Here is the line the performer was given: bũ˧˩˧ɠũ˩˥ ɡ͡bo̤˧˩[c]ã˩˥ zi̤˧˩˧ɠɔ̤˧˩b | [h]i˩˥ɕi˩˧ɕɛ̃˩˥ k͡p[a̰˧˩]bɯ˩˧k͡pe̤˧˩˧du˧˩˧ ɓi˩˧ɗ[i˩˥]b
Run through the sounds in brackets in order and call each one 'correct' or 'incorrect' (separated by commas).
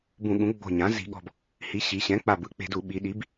incorrect, correct, incorrect, correct